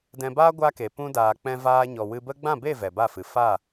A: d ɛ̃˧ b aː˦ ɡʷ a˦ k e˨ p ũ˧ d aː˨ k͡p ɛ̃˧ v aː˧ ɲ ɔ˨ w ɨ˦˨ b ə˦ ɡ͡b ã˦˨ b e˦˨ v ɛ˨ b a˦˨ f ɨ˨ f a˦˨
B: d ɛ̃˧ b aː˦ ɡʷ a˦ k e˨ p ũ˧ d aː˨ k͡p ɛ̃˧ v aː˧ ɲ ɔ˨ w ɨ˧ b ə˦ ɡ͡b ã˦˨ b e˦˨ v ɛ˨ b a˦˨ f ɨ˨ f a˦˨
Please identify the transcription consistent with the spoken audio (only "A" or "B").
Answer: B